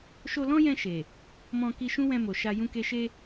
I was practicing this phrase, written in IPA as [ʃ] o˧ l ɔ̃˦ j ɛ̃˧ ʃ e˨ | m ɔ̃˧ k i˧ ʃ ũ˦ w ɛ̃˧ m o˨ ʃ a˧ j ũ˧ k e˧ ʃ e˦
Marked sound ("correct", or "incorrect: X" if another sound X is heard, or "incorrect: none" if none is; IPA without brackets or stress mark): correct